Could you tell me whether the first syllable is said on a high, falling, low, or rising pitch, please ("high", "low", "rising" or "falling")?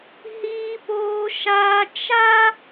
high